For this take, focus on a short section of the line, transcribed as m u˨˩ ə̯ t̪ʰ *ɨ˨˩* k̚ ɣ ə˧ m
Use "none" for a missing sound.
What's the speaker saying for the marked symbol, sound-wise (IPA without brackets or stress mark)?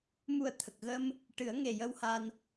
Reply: ə˨˩